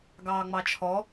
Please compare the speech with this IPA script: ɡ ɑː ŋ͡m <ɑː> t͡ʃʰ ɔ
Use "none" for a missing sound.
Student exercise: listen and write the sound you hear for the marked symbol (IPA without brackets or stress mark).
ɑ